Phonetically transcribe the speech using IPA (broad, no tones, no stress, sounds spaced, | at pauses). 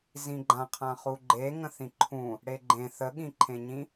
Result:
z ĩ ɡ͡ǃ ã qʰ ã χ u ɡ͡ǃ e ŋ ə̃ θ ĩ ǃʰ ũ | ɽ e ɡ͡ǃ ẽ θ ə ɠ ĩ ǃʰ ẽ ɲ ĩ